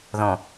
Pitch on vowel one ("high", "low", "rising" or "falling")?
low